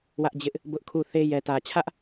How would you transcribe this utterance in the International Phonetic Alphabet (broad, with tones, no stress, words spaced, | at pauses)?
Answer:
wä˦ʔd͡ʑɪ˦ʔ | bʊ˦ʔkʰu˦˨ θe˦ jɛ˨tä˨t͡ɕʰä˦ʔ